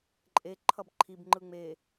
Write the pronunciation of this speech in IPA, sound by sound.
ǃʼ e ǃʰ ʌ b ǃʰ i b ŋ͡ǃ ɯ ŋ͡m e

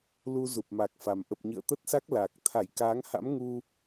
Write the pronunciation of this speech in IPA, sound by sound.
l u˧ z u˨˩ p̚ m a˨˩ k̚ f a˨˩ m ʔ ə˨˩ p̚ ɲ ɨ̰˧˨ ə̯ t̪ ə˦˥ t̚ s a˦˥ k̚ l aː˨˩ k̚ t̪ʰ a˧˩ j k aː˨˦ ŋ h a̰˧˥ m ŋ u˧

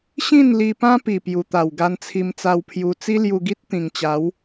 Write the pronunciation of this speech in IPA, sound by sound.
ɕ ĩ˥˧ n l i˧ p ã˦ p i˨˩ p j u˨˩ t̪ a˨˩ w ɡ a˧ n t͡sʰ i˧ m t͡s a˧ w pʰ j u˧ t͡s i˦ l j u˧ ɡ i˦ t̚ t̪ ĩ˨˩ ŋ t͡ɕ a˨˦ w

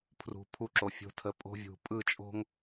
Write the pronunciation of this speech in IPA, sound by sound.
pʰ r ṳ˨ pʰ u˦ ǁ o˨ fʲ o̤˦ tʰ ə˨˦ pʼ o̤˦ vʲ ṳ˨ pʼ ɯ˦˨ t͡ʃʼ o̤˦ ŋ

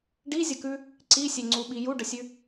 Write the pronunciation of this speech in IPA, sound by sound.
ɖ i zʲ ə k ʉ | ǀ i sʲ e ŋ͡ǀ u ɓ i j u ɖ ə sʲ ʉ

